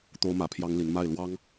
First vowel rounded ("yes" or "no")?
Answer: yes